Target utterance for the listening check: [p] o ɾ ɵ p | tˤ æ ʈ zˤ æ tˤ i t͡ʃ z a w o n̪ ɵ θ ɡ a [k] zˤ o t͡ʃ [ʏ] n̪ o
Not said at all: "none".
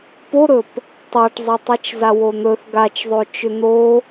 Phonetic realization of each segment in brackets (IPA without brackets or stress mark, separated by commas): p, t͡ʃ, ʏ